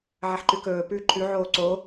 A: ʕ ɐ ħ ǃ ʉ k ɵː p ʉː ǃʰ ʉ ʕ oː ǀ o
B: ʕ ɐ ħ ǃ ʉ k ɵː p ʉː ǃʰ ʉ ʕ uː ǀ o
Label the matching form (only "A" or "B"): A